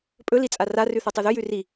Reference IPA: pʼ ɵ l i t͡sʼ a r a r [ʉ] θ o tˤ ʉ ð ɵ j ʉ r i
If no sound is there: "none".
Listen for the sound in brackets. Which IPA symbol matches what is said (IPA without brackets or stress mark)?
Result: ʉ